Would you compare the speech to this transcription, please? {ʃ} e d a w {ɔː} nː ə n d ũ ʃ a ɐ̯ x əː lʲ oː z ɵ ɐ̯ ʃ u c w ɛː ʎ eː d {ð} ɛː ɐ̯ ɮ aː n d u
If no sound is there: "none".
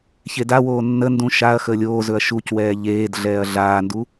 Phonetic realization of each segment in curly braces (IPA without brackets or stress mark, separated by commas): ç, oː, ɮ